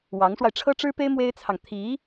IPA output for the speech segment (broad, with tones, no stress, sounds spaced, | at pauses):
w ɑ˧˥ ŋ ʂ w a˧ ɪ̯ ʈ͡ʂʰ ɤ˥ ʈ͡ʂ ɻ̩˥ p e˥ ɪ̯ m w e˥ ɪ̯ t͡sʰ ɑ˨ ŋ t̪ʰ i˧˥